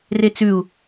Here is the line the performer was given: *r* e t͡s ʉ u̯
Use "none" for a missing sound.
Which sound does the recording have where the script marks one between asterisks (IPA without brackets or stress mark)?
r